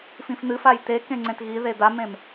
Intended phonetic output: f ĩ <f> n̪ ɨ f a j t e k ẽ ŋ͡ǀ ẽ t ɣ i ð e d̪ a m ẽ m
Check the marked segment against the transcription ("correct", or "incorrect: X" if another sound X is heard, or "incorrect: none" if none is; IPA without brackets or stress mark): correct